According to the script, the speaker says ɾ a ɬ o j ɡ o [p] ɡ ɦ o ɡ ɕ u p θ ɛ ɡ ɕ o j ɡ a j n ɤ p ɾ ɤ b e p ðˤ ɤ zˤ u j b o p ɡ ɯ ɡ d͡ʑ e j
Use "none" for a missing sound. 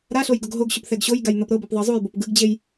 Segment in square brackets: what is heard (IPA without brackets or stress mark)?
none